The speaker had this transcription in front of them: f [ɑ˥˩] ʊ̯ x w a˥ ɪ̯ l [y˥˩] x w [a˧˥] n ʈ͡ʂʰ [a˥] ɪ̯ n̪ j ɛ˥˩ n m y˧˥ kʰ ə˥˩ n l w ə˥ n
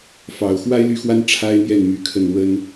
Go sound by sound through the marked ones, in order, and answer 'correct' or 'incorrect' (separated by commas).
incorrect, correct, incorrect, correct